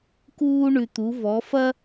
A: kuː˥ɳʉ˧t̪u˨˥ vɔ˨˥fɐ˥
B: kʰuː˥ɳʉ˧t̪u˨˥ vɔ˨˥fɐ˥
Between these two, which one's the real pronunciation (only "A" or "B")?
A